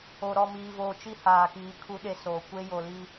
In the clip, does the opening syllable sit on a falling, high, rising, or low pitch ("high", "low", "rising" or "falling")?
low